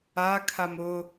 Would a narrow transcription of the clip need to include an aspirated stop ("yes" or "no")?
yes